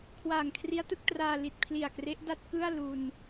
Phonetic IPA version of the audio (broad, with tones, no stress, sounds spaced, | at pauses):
kʰ w aː˨˩ ŋ kʰ r i˦˥ a̯ t ɯ˥˩ k̚ t r aː˧ l i˨˩ t̚ pʰ l i˨˩ a̯ k r e˦˥ ʔ d a˥˩ t̚ k ɯ˥˩ a̯ l u˧ n